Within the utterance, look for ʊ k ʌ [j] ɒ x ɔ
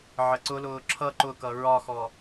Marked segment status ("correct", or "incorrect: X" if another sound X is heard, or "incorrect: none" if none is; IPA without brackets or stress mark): incorrect: ɹ